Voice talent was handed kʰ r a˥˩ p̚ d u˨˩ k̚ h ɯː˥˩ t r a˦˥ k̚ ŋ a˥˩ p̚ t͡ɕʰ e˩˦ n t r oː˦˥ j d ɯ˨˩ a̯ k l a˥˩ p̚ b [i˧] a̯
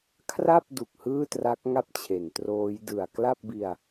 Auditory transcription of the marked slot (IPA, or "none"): i˧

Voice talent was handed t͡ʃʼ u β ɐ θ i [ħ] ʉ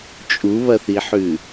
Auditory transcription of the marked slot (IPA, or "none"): ħ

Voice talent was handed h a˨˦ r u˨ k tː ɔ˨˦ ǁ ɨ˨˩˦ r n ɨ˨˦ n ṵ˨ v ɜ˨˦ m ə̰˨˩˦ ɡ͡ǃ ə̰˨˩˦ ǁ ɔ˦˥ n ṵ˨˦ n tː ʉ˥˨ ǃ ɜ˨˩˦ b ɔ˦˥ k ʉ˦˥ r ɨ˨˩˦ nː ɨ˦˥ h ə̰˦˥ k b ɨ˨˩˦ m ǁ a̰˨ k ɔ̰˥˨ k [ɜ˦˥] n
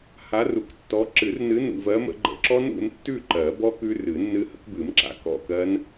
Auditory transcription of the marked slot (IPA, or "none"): ɜ˦˥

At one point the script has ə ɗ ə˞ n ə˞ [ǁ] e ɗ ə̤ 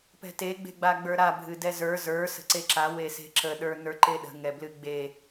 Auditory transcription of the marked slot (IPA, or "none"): ǃ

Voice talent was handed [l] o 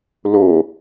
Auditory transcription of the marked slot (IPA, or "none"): l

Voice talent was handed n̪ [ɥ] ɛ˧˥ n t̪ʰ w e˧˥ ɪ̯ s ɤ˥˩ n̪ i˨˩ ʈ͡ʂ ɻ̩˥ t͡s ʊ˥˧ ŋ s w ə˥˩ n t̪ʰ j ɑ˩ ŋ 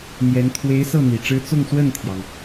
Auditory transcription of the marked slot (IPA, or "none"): j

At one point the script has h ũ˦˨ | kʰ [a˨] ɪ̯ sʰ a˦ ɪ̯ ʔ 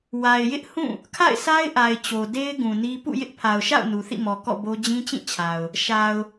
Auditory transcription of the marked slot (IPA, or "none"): a̰˦˨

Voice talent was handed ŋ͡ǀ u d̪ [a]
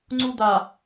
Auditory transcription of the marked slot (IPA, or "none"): a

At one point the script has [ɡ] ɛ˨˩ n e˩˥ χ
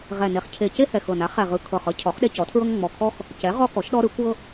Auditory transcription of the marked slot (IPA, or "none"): ʁ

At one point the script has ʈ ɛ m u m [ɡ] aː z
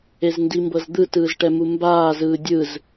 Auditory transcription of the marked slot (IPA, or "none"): b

